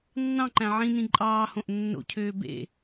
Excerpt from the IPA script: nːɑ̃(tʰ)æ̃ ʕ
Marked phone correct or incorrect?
incorrect